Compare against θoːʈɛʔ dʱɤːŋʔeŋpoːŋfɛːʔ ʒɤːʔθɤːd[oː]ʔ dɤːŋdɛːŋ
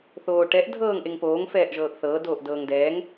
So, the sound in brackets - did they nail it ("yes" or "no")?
yes